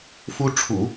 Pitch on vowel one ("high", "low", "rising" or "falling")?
high